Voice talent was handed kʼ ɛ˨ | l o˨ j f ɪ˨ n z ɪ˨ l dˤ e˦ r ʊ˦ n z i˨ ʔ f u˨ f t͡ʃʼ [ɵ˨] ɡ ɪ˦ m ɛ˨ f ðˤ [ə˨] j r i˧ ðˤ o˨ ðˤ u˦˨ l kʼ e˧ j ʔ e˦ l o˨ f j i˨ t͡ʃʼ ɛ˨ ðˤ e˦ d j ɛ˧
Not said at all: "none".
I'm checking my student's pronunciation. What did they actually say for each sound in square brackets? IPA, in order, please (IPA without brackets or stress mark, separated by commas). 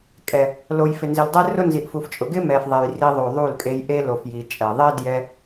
ʊ˨, ɛ˨